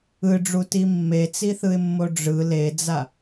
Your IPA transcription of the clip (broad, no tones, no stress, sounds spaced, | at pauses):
ɯ ɖ͡ʐ u t i mː e t͡s i θ ɯ ɪ̯ mː o ɖ͡ʐ ɯ l e d͡z a